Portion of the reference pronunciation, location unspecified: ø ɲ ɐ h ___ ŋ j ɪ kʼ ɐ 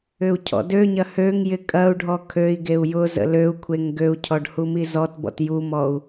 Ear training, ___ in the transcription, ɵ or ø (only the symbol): ø